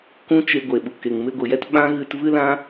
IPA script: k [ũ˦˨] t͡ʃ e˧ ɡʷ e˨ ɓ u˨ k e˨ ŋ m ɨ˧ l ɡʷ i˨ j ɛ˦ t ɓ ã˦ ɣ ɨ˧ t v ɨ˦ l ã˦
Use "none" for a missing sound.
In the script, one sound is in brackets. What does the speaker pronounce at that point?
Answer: ũ˦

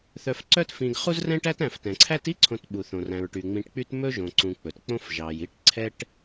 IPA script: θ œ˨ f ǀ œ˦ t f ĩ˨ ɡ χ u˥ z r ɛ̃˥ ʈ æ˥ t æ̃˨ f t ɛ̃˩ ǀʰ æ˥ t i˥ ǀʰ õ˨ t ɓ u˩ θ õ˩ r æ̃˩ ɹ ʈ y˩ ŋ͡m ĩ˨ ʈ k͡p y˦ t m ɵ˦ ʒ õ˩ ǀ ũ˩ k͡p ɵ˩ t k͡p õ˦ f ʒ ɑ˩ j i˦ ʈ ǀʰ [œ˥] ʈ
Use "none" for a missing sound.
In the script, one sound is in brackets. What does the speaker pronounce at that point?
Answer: ɛ˥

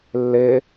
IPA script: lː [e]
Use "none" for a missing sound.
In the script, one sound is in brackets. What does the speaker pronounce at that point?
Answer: e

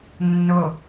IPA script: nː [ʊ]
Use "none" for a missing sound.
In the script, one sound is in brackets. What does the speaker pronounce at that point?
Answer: ʊ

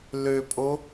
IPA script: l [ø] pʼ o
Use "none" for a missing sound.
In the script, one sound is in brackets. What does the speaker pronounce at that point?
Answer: ø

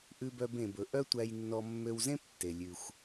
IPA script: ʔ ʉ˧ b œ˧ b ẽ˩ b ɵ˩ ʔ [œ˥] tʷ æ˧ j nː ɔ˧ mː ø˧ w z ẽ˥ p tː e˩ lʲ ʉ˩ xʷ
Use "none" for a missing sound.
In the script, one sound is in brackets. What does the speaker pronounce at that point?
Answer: œ˥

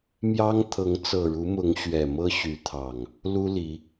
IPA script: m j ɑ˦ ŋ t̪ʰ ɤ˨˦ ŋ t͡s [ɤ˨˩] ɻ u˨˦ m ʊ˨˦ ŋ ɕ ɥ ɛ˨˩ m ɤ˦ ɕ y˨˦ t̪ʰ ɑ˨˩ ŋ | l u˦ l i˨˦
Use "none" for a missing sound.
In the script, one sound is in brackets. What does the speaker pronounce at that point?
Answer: ɤ˨˩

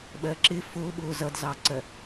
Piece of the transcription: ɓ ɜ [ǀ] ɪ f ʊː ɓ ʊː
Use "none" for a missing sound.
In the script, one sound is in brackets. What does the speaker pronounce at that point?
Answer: ǁ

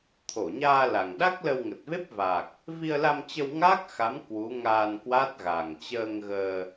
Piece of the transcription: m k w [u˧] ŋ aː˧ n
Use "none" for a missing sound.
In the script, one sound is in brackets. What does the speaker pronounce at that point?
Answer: u˨˦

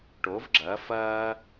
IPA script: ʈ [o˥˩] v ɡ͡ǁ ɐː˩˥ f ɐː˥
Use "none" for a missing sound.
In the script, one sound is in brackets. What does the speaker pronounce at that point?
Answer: o˩˥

